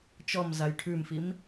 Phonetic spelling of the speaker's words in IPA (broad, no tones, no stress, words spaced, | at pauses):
t͡ʃɔm zajʈʰʉmfim